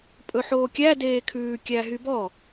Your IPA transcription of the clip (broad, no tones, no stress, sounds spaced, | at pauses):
pʼ ɵ ħ oː kʲ æ d eː kʰ ʉː kʲ æ ɦ y b ɔ